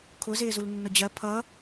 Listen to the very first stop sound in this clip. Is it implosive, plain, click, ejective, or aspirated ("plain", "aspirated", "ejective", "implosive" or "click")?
aspirated